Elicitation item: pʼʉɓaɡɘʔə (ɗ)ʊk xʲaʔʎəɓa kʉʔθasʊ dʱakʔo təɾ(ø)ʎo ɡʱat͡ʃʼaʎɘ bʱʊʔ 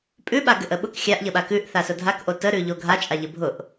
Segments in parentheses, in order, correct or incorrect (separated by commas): incorrect, incorrect